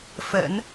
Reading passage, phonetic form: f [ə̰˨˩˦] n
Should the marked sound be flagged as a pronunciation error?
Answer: no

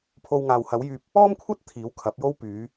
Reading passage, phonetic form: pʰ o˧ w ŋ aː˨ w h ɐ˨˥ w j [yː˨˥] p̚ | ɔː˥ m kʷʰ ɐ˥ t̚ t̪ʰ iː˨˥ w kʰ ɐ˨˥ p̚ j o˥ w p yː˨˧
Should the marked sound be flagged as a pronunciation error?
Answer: yes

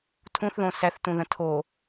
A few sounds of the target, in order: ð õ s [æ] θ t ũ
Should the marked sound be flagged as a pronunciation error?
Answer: no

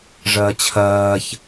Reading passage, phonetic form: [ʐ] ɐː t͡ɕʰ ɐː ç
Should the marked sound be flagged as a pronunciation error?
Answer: no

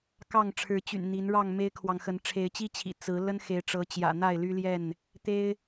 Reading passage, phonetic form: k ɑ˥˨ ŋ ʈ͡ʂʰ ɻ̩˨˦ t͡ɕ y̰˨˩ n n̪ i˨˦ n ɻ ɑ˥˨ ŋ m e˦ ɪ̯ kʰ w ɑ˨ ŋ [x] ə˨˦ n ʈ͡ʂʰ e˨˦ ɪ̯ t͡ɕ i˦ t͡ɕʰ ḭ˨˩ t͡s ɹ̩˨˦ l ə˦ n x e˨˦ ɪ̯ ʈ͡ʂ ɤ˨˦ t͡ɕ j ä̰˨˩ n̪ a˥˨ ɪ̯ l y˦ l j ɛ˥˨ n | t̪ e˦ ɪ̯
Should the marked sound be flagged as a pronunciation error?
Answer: no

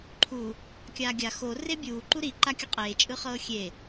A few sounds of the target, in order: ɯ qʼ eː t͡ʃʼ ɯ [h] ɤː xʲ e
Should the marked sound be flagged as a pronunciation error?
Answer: yes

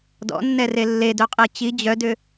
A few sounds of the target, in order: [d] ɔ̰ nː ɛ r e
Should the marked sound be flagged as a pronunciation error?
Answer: no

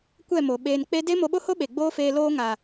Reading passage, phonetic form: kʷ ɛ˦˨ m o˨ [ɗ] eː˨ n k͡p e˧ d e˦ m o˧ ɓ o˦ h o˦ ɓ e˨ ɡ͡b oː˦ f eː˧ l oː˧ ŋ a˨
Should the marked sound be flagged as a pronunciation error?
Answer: yes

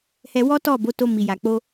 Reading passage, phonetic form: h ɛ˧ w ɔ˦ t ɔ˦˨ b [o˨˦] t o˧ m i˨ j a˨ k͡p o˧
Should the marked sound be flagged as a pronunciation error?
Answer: no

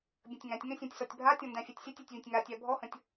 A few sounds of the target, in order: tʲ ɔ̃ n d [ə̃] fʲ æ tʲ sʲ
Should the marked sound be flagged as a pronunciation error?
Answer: yes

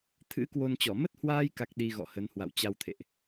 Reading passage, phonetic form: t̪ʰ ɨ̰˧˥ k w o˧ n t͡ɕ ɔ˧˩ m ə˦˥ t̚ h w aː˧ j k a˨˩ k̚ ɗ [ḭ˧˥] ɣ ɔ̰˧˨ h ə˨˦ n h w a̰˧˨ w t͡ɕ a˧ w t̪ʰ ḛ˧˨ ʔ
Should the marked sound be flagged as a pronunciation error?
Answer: yes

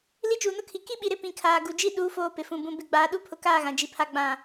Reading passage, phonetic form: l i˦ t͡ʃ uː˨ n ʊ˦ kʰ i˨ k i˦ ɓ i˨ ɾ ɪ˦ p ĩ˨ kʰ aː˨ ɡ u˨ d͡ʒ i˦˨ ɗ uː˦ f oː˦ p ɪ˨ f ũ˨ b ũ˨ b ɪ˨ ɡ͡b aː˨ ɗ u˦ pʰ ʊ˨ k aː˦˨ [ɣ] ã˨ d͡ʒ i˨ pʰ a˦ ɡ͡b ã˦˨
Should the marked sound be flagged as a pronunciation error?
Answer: no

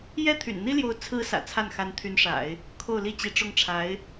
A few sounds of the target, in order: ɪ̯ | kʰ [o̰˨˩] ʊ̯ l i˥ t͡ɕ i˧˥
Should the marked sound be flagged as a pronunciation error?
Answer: yes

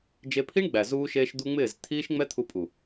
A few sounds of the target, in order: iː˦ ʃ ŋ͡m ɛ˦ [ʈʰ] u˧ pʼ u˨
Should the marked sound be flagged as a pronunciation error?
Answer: yes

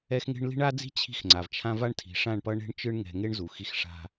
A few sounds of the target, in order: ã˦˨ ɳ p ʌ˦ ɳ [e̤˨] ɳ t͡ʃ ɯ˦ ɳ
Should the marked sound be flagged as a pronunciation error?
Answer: yes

